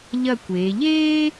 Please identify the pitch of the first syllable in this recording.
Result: falling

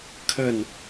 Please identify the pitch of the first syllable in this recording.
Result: falling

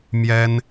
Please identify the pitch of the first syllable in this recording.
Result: high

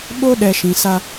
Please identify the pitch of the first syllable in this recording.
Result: high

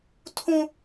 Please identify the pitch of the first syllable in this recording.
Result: high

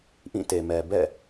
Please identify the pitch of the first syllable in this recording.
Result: falling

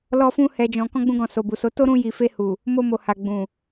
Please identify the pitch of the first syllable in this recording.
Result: high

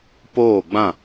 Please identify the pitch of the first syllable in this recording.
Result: falling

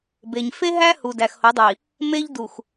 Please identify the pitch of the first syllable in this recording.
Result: low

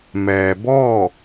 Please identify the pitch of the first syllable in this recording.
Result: low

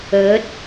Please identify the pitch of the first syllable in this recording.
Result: rising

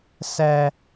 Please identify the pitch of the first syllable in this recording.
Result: high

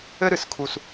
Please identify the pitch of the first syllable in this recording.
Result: high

